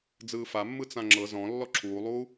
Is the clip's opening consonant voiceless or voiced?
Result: voiced